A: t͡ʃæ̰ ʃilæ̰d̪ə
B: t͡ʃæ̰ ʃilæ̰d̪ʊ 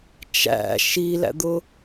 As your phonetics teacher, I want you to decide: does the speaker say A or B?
B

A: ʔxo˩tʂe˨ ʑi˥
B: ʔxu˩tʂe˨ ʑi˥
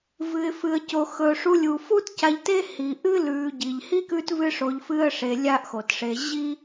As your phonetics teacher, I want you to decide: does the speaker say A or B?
A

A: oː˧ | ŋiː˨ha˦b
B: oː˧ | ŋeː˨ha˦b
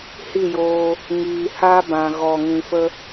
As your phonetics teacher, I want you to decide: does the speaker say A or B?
A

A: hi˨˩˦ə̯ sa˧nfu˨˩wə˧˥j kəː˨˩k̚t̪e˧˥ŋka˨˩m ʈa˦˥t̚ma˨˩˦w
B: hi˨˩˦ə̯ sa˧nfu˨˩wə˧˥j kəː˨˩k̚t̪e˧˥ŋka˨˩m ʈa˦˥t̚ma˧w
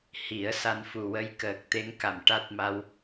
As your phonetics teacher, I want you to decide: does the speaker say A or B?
B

